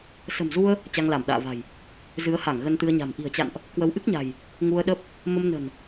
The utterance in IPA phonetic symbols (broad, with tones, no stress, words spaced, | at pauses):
sə̤˨˩mzu˧ə̯ | t͡ɕa˧ŋla˧˩mɗa̰ː˧˨va̤˨˩j | zɨ˨˦ə̯ha˧˩ŋ ɣə˧nt̪ɨ˧ə̯ɲa̤˨˩m ʔi̤˨˩ə̯t͡ɕa̰˧˨nʔ | kwə˨˦wʔɨ˦˥k̚ɲa̤˨˩j | ŋu˧ə̯ɗə˦˥p̚ | mə˧mnə̤˨˩n